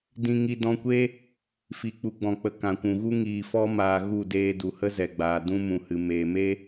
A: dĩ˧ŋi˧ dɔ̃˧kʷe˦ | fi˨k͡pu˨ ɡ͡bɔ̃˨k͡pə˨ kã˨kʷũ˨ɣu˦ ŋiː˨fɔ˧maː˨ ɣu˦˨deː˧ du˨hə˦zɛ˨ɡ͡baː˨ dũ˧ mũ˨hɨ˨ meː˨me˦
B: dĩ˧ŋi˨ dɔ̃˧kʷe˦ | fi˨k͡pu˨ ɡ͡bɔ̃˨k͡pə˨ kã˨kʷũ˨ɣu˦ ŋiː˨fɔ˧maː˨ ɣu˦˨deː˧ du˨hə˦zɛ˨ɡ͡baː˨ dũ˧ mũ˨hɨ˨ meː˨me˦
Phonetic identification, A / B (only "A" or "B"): A